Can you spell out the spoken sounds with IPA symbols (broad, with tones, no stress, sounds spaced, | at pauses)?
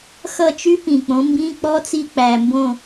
x ʌ˦˨ t͡ʃ y˦˥ p ĩ˨˩ k͡p õ˩˥ m b ĩ˧˥˧ k͡p ɔ˦˥ t͡s i˦˨ k͡p æ˨˩ m b õ˦˨